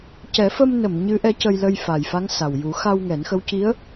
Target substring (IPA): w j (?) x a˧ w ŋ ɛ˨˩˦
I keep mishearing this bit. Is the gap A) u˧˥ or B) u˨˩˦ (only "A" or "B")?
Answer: B